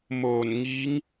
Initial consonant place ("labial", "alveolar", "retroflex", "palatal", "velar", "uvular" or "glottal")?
labial